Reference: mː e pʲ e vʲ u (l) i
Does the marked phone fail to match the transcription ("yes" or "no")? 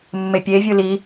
no